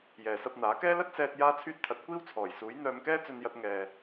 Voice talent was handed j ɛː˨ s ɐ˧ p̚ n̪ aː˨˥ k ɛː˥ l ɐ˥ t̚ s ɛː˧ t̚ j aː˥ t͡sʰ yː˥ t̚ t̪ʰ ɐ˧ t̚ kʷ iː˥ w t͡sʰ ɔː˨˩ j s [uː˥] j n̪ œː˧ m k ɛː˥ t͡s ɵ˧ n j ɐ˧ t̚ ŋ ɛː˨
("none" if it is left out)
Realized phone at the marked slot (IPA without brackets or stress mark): uː˨˥